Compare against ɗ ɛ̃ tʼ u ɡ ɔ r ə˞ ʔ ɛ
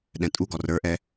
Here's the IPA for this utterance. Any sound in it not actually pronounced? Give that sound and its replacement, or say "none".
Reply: none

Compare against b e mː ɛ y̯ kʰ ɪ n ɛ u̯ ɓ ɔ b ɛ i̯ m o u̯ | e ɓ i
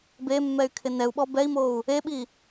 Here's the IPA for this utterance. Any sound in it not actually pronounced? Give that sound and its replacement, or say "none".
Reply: none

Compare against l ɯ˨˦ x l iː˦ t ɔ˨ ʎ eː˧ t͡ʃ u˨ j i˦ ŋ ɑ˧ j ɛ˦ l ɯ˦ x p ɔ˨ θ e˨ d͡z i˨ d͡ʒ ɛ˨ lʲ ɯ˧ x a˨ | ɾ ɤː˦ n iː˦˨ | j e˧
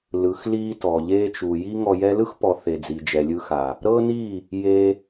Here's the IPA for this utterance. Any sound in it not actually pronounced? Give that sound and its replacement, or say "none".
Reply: ɑ˧ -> ɔ˧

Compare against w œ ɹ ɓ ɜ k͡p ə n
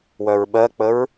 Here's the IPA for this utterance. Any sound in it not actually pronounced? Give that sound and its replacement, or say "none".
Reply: n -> ɹ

